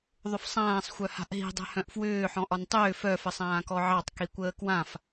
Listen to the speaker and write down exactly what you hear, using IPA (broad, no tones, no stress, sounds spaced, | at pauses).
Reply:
ðˤ ʏ f sˤ ãː sˤ xʷ œ h a̤ ʔ ɦ i̤ dˤ ɛ̤ h œ̃ ʔ f w ʏː ħ ɔ̃ ʔ ɒ n tˤ ʏː f œ f ə sˤ ãː k ɔ ʕ ɑ tˤ k i kʷ əː k w ã f